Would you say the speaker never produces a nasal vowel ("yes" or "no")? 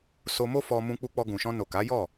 no